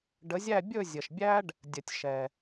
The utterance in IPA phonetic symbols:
ɖ ə˨˦ zʲ æ˥˧ bʲ ɵ˥˧ zʲ ə˨ ʃ bʲ æ˥ ɖ | dʲ ə˨ tʲ ʃ ɛ˨

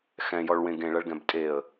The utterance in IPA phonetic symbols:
x ɛ̃ j ɔ ɭ w ẽ ɡ ẽ ɭ ɐ ɭ ɡ ɛ̃ b tʼ e ə̯

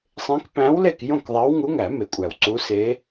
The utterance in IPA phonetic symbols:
sˤ ẽ˧˥ k p æ̃˧˥ w l e˥˨ k j õ˥˨ k ðˤ æ˧˥ w ŋ u˧˥ ŋ æ˨˩˦ m e˨˩˦ kʷʼ æ˨˩ w ǀ u˧˥ s e˧˥

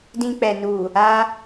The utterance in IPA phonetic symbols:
d ĩ˧ k͡p ɛ˨ n u˨ | a˧

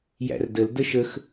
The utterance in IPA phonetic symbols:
j æ̰ r d ə l d ə ʃ ə x

